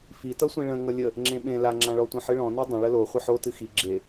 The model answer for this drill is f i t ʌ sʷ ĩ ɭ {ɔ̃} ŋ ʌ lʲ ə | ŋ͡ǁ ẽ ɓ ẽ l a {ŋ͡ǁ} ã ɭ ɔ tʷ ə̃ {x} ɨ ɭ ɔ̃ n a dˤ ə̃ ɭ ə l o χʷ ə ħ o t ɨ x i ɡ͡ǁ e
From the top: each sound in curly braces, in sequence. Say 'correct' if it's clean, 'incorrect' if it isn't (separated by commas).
incorrect, correct, incorrect